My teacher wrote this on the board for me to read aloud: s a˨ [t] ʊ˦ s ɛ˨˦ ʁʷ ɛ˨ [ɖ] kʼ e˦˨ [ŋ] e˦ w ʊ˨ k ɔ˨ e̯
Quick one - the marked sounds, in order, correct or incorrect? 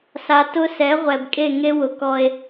correct, incorrect, correct

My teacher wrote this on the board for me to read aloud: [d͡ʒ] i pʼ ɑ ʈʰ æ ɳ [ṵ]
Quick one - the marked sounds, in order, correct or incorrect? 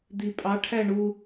incorrect, incorrect

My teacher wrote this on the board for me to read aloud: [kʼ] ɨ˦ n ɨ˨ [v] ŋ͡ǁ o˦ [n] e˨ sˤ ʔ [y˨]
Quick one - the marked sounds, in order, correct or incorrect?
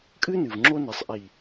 correct, correct, correct, incorrect

